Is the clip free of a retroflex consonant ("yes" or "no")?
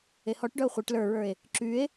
no